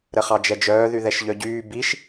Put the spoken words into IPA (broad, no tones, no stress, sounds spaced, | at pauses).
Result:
ɾ ə χ ɑ d͡ʒ ɛ d͡ʒ œː ð y ð ɛ ʃ ʎ œ ɟ yː b i ʃ